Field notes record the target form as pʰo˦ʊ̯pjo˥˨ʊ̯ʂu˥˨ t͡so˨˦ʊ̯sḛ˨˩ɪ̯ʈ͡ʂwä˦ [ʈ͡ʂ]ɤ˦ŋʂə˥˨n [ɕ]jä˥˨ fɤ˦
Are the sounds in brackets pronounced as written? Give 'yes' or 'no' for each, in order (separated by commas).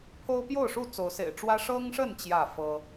no, no